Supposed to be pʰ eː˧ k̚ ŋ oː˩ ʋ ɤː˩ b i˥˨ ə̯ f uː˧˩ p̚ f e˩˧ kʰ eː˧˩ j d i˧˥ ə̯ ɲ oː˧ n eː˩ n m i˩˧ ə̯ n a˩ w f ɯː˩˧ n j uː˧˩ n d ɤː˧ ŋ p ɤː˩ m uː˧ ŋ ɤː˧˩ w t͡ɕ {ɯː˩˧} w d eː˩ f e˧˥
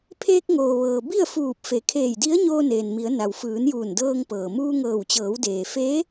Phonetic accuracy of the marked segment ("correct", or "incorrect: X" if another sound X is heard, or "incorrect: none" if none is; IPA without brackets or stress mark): incorrect: ɤː˩˧